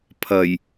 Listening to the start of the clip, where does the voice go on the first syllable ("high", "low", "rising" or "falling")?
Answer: low